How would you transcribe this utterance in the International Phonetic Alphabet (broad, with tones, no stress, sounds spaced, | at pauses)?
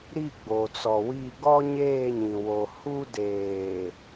ɾ i˦˨ ɡ͡b o˨ t͡s ɔ˨ w i˦˨ ɡ ɔ˦ ɲ eː˦˨ ɲ ĩ˨ w o˨ h u˦ d eː˨